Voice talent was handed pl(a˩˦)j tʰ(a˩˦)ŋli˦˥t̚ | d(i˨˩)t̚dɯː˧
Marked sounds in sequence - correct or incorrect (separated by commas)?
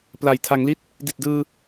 incorrect, correct, correct